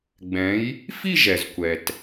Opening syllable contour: rising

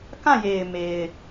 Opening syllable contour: falling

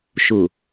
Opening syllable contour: low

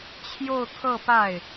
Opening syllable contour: falling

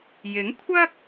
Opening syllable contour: rising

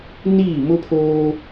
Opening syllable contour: falling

